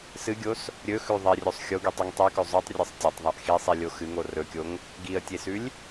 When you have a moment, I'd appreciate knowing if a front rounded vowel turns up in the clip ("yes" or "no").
no